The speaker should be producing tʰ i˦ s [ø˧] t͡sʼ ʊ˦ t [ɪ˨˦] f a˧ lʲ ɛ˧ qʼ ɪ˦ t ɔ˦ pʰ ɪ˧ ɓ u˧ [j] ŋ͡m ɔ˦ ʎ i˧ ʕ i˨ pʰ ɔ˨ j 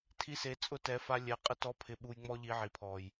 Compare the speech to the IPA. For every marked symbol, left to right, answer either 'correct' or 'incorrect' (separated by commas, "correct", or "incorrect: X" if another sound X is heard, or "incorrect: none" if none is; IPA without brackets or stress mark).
incorrect: e˧, incorrect: ɛ˨˦, correct